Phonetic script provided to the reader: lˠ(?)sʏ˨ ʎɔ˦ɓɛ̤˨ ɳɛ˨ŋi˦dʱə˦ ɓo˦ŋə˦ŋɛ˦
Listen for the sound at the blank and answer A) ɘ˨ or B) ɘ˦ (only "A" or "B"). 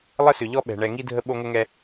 B